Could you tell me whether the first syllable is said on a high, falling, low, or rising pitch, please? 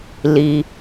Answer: low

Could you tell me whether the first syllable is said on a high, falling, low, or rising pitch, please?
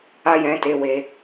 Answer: high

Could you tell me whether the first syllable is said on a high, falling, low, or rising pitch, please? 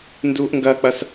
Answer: high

